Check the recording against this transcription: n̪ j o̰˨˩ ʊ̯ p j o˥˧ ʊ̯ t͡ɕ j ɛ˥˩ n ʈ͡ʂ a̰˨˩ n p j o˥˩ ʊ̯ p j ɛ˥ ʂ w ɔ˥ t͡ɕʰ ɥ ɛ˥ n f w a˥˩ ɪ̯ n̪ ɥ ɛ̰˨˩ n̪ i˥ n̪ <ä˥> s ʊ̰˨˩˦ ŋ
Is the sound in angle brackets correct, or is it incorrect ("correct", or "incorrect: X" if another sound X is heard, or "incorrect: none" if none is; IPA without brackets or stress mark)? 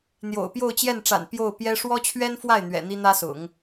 correct